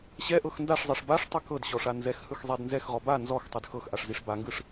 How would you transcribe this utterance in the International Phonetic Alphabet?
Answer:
ɕ ɛ ʔ ɤ x n d a ʂ zˤ ɤ ʂ b a ʂ tˤ ɯ k ɤ d ɕ ɔ ʂ a n z ɛ x h ɯ x zˤ ɛ d n z ɛ x ʁ ɔ b a n z ɔ x tˤ ɯ d x ɤ x ʔ a ʂ z i ʂ b a ŋ ɡ ɯ ʂ

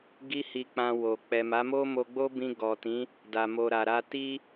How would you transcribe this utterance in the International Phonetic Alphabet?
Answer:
ɡ i˦ h i˧ k͡p ã˧ w o˨ k͡p ɛ˨ m a˨˦ m o˦ m o˧ ɡ͡b o˦ b ĩ˧ ɡ ɔ˨ t ĩ˨˦ | d a˨ m o˨ ɾ a˨ ɾ a˧ t i˦

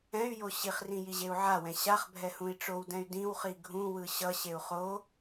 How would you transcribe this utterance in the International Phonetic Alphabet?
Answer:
ɛ̃ y̯ j o ɕ i χ r ĩ j i ʑ e u̯ ʕ a w ɛ̃ ɕ a χ bʱ ɛ h ũ i̯ ʈ͡ʂ o w d ɛ̃ y̯ d ĩ w χ i ɡʱ ũ w ɯ ɕ ʌ ɕ e u̯ χ o

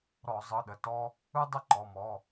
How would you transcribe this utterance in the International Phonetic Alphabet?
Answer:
ɾ ɔ˧˩˧ zˤ ɯ˩˧˩ ɗ ə˩˧˩ t ɔ˦ | ɯ˦ dˤ ə˥˩ ǃ ɔ˩˧˩ m ɔ˩˧˩

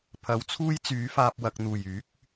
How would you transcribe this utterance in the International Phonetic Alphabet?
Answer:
pʰ ɐ˨˥ w t͡sʰ uː˥ j t͡s yː˨˥ f aː˧ p̚ w ɐ˨ k̚ n̪ uː˨˩ j yː˨˥ k̚

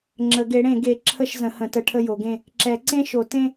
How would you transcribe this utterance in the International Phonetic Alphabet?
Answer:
ŋ͡ǁ ə˨˩˦ ɡ e˩˥ ɽ ẽ˨˩˦ ɡ e˩˥ ǁʰ ə˥˧ ʃ z ə̃˩˥ h ə̃˩˥ t ə˩˥ ʈʰ ə˥˧ j o˩˥ ɡ ẽ˥˧ | ǁ ɛ˨˩˦ ǀ ẽ˥˧ ʃ o˨˩˦ t ẽ˥˧

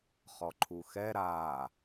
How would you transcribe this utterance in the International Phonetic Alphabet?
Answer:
χ ɔ ǃʰ u x ɛ ɾ a

